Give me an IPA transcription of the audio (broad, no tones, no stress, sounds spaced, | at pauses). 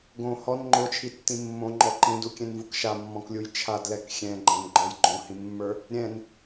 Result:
ɡ õ h ɔ n ŋ͡ǃ o t͡ʃʰ i tː ĩ mː õ ŋ͡ǃ ɔ ǃ ĩ d u kʲ ɛ̃ n v u k ʃ a mː ɔ̃ k lʲ u j t͡ʃʰ a d l ɛ k xʲ ɛ̃ ɡ͡ǃ ɛ̃ n ɡ͡ǃ ɔ j ɡ͡ǃ õ h ĩ mː ə˞ | ɾʲ ɛ̃ n